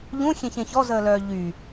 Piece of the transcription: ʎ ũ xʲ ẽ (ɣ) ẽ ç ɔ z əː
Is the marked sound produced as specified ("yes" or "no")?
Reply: no